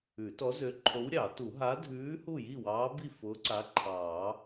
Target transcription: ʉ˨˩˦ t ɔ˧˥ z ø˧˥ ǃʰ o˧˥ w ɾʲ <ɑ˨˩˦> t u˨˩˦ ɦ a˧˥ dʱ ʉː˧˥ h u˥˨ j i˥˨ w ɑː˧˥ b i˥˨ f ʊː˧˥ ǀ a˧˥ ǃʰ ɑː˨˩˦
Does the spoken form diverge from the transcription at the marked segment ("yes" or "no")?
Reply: no